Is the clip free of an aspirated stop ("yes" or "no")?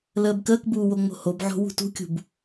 yes